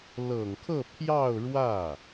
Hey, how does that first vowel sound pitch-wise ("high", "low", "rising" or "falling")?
low